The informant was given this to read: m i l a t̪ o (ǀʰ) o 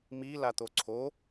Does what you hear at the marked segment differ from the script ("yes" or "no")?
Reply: no